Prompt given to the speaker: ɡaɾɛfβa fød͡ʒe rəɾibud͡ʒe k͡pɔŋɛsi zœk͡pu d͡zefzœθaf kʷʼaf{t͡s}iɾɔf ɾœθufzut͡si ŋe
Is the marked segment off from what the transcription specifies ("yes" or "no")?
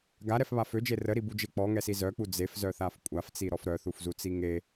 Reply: no